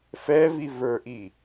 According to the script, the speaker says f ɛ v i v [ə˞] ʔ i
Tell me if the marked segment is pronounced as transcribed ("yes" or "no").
yes